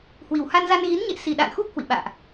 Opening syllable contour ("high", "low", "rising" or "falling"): low